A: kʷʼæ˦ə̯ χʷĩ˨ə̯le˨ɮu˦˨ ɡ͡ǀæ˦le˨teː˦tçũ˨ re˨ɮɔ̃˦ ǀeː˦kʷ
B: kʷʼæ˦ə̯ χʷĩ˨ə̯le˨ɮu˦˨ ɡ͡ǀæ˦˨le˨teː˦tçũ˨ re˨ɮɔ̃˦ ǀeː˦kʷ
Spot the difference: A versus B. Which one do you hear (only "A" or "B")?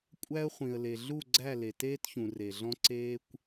B